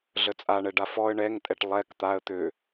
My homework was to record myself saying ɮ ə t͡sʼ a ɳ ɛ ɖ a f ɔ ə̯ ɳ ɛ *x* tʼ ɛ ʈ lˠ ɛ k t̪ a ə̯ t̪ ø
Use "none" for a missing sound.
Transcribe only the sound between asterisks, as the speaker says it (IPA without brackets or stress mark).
ŋ